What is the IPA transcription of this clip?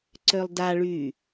ǀ ø lˠ d a ɭ y

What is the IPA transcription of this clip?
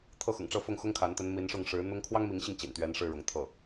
t̪ʰ ɤ˥˩ x ʊ̰˨˩ ŋ ʈ͡ʂ ɤ˥˧ f ʊ˥˩ ŋ x ʊ˥ ŋ kʰ a˧˥ n t̪ ə˧˥ n m i˧˥ n ʂ ʊ˥˩ ŋ ʂ ɻ̩˧˥ n̪ ʊ˥ ŋ kʰ w ɑ˥ ŋ m i˧˥ ŋ ɕ i˧ ŋ t͡ɕ ḭ˨˩ n t̪ ɥ ɛ˧˥ n ʂ ɻ̩˥˩ ɻ ʊ˧˥ ŋ t̪ʰ ɤ˥˩

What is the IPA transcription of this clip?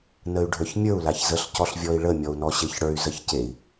n ə y̯ ɖʱ ə˞ ç mʲ ə˞ u̯ l a ç z ə ɬ c ɔ ɬ vʲ ɔ i̯ ɭ ə mʲ ɔ u̯ n ɔ ɕ e ç ɽ ə˞ y̯ z ə ç c e i̯

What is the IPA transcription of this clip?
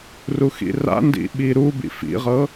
r u x ḭ r a̰ n d ḭ ɓ i ɾ u b ḭ f ḭ ʁ ɤ

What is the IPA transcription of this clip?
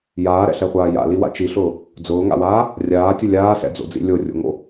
j aː ɾ ɛ̰ ɬ ɛ χʷ aː j a̰ l i w a̰ t͡ʃ i ɬ ʊː | d͡z ʊː ŋ a̰ w aː | rʲ aː tʲ ʊ lʲ aː s ɛ̰ d͡z o̰ d͡z ḭ lʲ o rʲ o̰ ŋ o̰

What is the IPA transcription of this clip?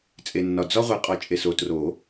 t͡sʼ e˨ nː ɒ˨ d͡z ɒ˦ ʁʷ e˨˩˦ qʼ ɒ˨ t͡ʃʼ e˨ s o˨ t r o˨˩˦

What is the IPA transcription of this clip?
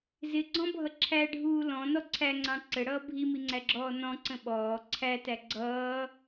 z ɪ ɡ͡ǀ ɔ̃ bʱ ʌ ǁʰ æ ɖʱ uː l ɔ̃ n ɔ ǀʰ æ ŋ͡ǀ ɑ̃ ǀ ə ɽ ʌː bʱ i m i ŋ͡ǀ æ ɡ͡ǁ ɔː n ɔ̃ ǀ ə̃ ɓ ɔː ǀʰ æ t æ ɡ͡ǀ ʌː

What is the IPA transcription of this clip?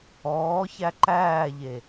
ɔː ç æ ǃ æː ʎ e

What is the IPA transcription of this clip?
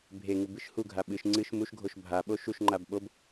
bʱ e ŋ u b ɨ ʃ h u ɡʱ a ɓ ɨ ʃ ŋ͡ǀ ɨ ʃ m u ʃ ɡʱ o ʃ bʱ a ɓ o ʃ u ʃ ŋ͡ǃ a b ɓ o b

